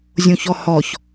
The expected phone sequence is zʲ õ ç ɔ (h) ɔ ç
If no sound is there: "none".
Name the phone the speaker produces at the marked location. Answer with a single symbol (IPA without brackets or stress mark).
h